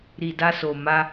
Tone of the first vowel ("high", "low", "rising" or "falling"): low